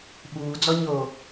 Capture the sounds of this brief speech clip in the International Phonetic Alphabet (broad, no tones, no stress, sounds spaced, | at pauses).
ɓ uː d͡z ɔ ɲ oː